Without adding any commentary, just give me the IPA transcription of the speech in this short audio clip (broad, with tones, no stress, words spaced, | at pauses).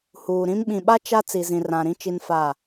huː˨ɾĩ˦m ɓĩ˨ɓa˦ t͡ʃa˦ t͡si˨zĩ˨rã˨ɾĩ˦ t͡ʃi˦nfa˦˨